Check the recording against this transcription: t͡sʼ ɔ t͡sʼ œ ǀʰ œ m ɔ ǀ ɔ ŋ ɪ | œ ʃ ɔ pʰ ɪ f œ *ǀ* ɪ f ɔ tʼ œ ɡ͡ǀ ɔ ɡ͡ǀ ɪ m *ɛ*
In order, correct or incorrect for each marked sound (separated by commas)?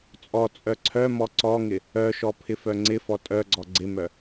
incorrect, incorrect